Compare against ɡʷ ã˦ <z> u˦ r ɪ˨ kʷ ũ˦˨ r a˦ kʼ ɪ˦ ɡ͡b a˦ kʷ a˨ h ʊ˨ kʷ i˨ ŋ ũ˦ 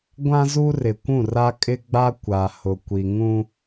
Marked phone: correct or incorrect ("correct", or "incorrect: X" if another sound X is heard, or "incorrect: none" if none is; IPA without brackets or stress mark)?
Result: correct